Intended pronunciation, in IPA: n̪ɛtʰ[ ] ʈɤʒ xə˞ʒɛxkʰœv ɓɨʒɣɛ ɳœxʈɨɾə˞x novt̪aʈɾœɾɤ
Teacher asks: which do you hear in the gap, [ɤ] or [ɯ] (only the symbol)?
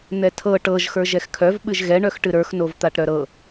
ɤ